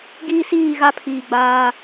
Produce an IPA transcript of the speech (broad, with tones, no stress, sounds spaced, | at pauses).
ɡ iː˦ s iː˦˨ ɣ a˦ pʰ iː˨ ɡ͡b aː˦